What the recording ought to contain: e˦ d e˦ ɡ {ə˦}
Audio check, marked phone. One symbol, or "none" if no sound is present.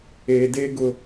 ʊ˦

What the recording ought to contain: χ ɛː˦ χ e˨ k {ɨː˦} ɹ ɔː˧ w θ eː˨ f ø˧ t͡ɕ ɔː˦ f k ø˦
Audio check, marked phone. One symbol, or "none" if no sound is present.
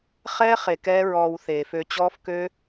ɛː˦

